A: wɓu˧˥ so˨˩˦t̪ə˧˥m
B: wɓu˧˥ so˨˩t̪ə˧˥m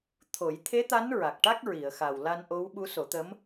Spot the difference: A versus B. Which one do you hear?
A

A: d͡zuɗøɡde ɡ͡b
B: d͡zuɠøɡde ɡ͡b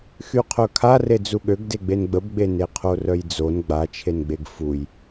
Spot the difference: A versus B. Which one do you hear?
B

